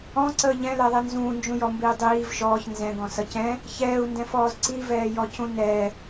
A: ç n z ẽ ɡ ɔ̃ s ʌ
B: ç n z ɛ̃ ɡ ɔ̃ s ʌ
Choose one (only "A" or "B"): B